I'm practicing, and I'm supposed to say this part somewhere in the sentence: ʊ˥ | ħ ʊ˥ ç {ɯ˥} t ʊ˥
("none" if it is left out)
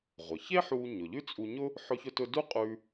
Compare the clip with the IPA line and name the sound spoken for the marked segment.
ʊ˥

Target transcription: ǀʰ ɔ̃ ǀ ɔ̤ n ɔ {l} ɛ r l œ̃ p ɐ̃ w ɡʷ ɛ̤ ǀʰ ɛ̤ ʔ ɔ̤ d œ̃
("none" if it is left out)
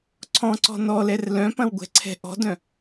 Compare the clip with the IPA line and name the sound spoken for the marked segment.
l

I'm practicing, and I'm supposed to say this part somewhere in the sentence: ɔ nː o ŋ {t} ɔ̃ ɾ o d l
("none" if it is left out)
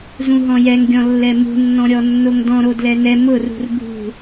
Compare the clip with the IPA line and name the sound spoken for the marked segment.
d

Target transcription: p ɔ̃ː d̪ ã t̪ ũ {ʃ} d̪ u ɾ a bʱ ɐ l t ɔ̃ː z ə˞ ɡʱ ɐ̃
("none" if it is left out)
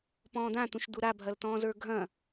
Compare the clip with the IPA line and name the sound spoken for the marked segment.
ʃ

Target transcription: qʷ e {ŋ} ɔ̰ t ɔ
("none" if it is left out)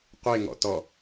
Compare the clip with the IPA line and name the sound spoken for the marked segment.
ŋ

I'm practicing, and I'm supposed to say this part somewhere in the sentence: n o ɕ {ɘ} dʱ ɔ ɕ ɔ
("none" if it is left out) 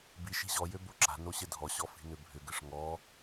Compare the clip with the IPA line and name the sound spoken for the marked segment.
ɘ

